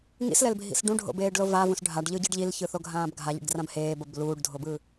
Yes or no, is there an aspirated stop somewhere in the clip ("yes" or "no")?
no